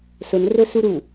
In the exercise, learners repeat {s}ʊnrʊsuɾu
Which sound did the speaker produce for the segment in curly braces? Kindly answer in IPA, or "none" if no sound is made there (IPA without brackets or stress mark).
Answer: s